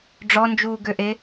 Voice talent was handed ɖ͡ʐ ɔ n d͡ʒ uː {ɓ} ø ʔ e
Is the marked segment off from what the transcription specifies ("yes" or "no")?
yes